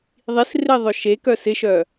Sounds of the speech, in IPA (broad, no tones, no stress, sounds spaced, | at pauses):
ðˤ i s r e ðˤ œ ʃ e k œ s ɪ ʃ œ